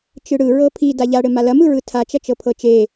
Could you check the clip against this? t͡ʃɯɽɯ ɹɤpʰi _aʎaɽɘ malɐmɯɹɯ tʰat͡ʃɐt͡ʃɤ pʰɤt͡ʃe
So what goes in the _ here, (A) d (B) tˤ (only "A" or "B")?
A